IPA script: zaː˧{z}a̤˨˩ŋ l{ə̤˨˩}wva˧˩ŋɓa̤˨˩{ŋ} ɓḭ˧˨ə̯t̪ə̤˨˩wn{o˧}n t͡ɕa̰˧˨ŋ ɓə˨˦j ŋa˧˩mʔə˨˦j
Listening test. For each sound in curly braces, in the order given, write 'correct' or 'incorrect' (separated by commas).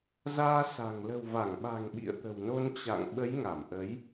incorrect, correct, correct, correct